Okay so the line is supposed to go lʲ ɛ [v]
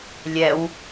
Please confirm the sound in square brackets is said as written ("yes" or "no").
no